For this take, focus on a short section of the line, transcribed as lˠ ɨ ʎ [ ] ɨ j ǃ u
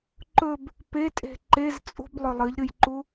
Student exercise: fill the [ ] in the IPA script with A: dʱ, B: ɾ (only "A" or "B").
B